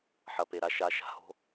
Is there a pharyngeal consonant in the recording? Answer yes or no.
yes